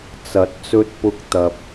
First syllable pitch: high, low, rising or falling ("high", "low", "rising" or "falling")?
rising